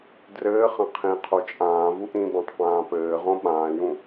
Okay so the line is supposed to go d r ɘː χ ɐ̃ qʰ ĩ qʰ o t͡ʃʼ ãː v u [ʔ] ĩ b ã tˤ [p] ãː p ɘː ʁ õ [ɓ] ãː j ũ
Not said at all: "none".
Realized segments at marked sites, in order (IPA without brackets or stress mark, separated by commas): ʔ, p, ɓ